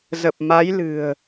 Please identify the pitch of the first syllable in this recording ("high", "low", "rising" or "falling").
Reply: low